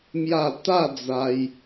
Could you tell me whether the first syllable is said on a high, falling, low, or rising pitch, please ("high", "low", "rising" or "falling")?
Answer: low